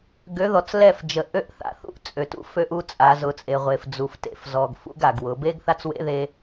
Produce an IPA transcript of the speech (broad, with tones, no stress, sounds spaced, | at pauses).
ɡ ø˨˦ ð ɔ˨ t͡s l ɛ˦˨ f d͡ʒ ə˨ ʔ ø˦ ʔ θ a̰˨ θ ṵ˦ ʔ t͡sʼ ø˨ t ṵ˦ f ø˦ ʔ u˦ t͡sʼ a˨˦ z ʊ˨ t͡sʼ e˨ ʁʷ e˨ f d͡z u˨ f t ḛ˨ f z ɔ˨ ɡ f ṵ˦ ɡ a˨ ɡ w ʊ˨˦ b e˦ ɡ θ a˦ t͡s w ḛ˦ ð e˦